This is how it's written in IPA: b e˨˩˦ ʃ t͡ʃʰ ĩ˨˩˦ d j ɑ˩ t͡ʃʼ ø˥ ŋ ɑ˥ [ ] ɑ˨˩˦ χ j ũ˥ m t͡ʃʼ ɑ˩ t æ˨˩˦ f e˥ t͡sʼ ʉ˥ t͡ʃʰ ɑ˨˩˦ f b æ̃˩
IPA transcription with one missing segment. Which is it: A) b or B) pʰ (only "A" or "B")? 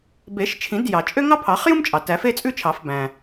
B